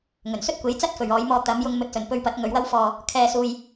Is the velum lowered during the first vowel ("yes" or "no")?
no